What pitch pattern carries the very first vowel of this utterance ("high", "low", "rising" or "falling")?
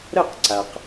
falling